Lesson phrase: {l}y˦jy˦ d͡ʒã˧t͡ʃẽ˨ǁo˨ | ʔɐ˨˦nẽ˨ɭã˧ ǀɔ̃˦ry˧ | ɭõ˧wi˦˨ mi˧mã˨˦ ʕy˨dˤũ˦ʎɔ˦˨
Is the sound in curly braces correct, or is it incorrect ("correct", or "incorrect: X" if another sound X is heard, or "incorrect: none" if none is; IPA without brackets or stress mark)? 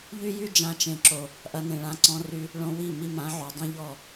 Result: incorrect: ʎ